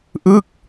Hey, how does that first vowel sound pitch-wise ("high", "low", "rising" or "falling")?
falling